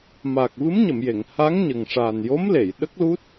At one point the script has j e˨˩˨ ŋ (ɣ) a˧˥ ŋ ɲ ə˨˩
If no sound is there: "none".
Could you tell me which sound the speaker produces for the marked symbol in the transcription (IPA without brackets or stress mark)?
h